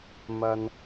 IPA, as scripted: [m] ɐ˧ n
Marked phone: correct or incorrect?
correct